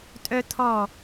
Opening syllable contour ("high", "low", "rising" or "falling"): high